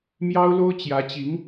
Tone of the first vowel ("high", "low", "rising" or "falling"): high